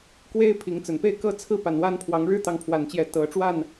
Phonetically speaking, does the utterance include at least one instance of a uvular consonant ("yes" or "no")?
no